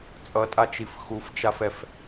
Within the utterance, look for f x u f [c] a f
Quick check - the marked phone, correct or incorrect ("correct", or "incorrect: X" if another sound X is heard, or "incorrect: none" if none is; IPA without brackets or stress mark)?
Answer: incorrect: t͡ʃ